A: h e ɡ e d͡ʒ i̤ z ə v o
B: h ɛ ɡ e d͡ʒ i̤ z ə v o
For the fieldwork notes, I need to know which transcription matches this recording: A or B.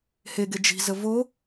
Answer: A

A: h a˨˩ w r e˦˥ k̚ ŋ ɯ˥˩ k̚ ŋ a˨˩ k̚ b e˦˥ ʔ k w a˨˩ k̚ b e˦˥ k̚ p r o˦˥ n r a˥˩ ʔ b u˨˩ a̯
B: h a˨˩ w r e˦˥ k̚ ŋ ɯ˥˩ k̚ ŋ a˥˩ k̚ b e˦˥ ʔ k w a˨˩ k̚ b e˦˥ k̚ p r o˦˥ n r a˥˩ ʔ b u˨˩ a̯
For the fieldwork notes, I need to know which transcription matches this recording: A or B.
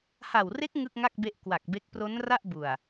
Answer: B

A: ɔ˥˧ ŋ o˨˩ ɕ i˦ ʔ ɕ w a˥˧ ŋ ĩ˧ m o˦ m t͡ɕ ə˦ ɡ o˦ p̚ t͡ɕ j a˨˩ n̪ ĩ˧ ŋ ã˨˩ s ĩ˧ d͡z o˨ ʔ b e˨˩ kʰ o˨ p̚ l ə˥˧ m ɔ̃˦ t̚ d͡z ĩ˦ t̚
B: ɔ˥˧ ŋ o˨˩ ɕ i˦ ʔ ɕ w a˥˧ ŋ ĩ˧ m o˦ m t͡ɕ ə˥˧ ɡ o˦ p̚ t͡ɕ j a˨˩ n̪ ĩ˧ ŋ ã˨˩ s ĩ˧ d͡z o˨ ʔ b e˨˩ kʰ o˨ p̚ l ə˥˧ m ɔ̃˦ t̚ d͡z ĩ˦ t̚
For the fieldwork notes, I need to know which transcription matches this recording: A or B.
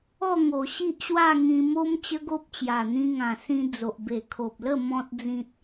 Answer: A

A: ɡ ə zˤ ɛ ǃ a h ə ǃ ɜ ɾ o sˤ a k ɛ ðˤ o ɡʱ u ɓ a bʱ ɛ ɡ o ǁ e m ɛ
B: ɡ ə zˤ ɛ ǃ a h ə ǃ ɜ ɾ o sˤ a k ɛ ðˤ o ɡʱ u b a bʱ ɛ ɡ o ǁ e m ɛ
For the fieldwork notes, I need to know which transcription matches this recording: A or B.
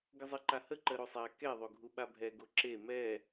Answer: A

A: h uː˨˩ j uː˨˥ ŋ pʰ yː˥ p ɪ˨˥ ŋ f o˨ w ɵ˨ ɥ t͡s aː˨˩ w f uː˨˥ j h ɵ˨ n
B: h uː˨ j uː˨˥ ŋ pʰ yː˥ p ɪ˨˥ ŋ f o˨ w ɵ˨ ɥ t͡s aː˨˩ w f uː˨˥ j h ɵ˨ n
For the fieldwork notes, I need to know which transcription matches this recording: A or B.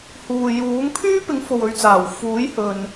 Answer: B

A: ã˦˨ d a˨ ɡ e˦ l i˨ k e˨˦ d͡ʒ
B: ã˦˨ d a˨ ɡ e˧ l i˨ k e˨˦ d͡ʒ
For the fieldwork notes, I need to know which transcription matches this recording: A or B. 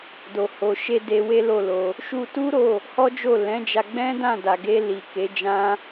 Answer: B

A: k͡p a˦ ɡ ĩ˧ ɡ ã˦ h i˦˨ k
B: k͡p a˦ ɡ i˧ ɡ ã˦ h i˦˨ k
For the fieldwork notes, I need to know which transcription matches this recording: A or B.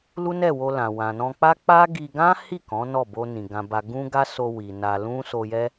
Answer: B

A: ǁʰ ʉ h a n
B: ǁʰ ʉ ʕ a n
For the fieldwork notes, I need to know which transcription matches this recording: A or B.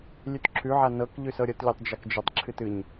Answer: B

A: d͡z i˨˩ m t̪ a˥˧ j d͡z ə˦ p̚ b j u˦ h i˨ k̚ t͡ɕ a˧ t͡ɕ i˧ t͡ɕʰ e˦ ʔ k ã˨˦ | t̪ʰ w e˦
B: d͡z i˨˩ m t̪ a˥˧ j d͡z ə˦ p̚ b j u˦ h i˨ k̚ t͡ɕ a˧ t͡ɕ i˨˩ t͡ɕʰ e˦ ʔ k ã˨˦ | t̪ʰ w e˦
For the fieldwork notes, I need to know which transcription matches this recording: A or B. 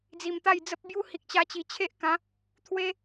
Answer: B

